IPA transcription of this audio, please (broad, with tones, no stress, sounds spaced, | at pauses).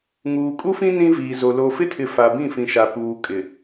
ŋ uː˨ kʼ u˦ f ĩ˦ n ĩ˦ v iː˨ z o˨ l o˨ f ɪ˦ tʰ ɪ˨ f a˨ b ĩ˦˨ f ĩ˨ ʃ a˨ p uː˨ kʼ ɪ˨